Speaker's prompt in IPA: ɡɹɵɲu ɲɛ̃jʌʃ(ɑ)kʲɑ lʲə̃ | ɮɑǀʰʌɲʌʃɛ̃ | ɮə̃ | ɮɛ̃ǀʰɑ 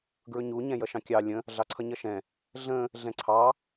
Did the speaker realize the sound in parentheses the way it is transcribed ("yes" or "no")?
no